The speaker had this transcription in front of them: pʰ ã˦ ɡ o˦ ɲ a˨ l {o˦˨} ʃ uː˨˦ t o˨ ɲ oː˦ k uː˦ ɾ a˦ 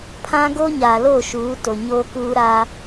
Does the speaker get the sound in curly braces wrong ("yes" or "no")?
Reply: no